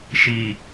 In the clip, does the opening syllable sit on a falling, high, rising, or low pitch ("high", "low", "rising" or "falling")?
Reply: low